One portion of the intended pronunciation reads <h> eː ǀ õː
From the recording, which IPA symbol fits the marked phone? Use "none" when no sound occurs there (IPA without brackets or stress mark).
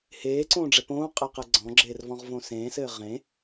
h